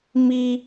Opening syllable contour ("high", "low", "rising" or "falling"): high